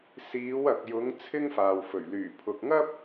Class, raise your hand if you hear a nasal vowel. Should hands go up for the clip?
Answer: no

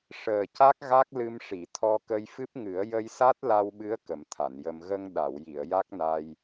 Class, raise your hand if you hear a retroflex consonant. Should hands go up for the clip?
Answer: yes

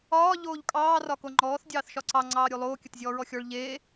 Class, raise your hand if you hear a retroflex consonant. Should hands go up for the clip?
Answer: yes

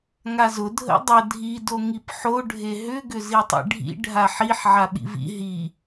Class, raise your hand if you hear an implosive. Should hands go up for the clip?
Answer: yes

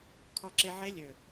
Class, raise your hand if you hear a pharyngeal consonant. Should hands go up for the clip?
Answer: yes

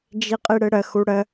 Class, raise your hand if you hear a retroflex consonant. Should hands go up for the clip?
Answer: yes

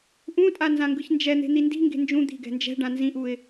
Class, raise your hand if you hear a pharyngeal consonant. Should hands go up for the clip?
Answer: no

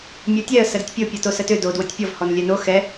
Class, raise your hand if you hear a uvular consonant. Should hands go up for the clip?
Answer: no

